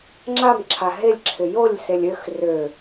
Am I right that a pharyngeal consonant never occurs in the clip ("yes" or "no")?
yes